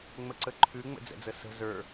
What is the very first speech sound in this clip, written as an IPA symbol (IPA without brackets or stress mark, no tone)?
ŋ͡m